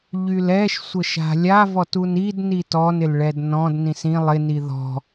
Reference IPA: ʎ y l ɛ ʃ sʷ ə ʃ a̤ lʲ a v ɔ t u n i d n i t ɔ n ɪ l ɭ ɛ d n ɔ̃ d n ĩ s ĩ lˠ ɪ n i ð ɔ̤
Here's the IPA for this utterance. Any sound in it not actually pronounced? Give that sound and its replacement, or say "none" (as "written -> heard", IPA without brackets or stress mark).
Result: none